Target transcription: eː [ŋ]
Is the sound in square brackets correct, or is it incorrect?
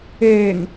correct